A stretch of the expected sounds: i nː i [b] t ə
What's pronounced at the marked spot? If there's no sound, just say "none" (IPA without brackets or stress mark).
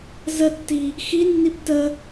b